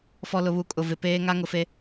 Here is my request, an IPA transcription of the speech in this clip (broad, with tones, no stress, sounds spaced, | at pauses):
f ɔ˨ l ʊ˨ β u˨˦ kʼ ʊ˨ v ɪ˨ p eː˦ ŋ a˦ ŋ ʊ˨ f e˦